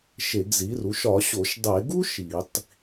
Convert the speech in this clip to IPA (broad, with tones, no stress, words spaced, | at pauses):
ʃe˧˩˧ɡzi˩˥ru˩˥ʃ ɒ˧˩˧ɕo˧˩˧ʃ dˤe˧˩˧ɡu˥ ʃi˧˩˧tˤ